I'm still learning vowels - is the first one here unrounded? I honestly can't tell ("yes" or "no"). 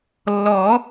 no